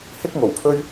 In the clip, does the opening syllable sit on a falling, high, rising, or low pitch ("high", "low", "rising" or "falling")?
high